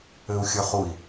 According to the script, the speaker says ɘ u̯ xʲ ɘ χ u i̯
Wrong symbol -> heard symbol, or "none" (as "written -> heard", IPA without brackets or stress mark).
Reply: none